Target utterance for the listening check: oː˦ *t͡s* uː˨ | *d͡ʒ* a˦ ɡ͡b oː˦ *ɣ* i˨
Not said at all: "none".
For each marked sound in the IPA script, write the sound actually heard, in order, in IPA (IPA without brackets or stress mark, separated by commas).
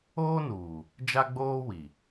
n, d͡ʒ, w